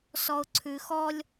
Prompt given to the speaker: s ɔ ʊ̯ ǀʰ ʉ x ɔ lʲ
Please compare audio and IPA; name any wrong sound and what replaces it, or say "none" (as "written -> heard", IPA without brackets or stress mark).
none